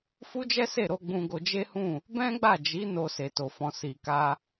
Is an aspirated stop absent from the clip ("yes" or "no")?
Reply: yes